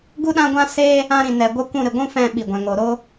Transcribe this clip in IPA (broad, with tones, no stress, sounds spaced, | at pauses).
ɡ u˦ ɗ ã˦ ɡʷ ã˦ s e˦ | ã˧ ɾ ĩ˨ n ɛ˨ ɡʷ ə˦ kʷ ũ˧ ɾ ɨ˨ ɡʷ ũ˦ f ɛ̃˧ ɓ i˨ ɡʷ ɛ̃˨ ŋ o˨ ɾ o˦